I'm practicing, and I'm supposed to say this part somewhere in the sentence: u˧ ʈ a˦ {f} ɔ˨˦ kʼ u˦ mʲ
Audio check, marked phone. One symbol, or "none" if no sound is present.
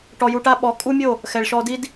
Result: ɓ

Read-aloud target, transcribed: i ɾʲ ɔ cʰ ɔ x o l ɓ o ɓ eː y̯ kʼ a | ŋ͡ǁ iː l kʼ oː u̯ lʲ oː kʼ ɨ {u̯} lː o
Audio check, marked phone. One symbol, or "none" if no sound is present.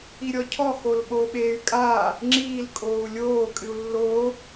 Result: u̯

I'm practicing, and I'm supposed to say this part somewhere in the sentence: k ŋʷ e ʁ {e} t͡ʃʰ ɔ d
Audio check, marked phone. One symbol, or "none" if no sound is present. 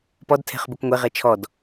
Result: e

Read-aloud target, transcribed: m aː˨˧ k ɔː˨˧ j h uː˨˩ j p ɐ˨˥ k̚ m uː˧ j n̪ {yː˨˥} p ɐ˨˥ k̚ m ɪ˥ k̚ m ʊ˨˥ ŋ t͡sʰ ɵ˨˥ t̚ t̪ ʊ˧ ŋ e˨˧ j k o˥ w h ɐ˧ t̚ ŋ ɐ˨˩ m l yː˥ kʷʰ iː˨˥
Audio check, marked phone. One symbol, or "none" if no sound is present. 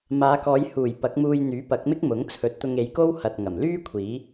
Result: yː˨˥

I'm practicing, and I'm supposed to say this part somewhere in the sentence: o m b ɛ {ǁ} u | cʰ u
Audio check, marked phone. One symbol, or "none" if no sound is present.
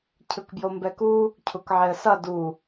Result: k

